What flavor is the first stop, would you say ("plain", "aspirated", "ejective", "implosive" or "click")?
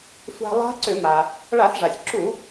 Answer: click